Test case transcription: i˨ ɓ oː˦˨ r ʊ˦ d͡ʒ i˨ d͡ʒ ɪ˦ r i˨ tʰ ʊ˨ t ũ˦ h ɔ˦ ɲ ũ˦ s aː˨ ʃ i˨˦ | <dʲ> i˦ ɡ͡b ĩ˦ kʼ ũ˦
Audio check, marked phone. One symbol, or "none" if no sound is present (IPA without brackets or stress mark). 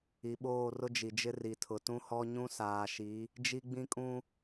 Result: d͡ʒ